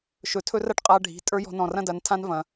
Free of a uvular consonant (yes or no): no